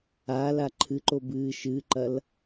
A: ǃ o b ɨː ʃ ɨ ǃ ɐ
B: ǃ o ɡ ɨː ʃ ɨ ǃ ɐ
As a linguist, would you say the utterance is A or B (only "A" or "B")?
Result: A